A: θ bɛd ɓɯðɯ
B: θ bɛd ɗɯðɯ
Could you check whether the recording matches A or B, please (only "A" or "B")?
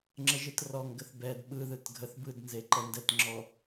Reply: A